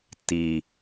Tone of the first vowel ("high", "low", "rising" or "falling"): low